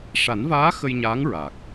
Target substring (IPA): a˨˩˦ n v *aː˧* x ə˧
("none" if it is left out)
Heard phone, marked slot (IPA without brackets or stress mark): aː˧˥